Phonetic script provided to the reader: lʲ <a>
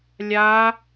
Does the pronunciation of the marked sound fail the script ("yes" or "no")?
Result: no